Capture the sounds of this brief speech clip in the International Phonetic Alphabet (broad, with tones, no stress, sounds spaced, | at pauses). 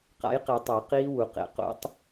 q a̰˩˥ j q e˨˩˦ tˤ o˨˩˦ q iː˦˥ w u˨˩˦ q ḛ˩˥ q o̰˨˩˦ tˤ